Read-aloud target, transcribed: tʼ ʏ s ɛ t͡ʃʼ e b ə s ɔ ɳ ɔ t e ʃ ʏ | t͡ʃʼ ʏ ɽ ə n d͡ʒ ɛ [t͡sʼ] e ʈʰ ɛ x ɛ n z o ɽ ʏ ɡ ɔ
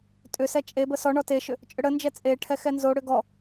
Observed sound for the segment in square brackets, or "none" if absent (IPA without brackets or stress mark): t͡sʼ